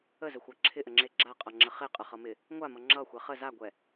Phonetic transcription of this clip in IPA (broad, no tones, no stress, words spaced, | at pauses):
əzəxʷa ǁʰɪʔəŋ͡ǁe ɡ͡ǁaqʼʌŋ͡ǁə χeqʼəχʌmɪ | ŋʷamʌ ŋ͡ǁʌxʷɛ χə zaɡʷɛ